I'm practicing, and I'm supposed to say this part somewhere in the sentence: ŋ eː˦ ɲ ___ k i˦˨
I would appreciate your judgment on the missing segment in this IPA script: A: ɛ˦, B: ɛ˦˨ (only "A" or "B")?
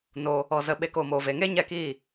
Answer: B